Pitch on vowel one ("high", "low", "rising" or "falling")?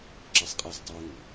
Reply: high